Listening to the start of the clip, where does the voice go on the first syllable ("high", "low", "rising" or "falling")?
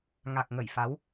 low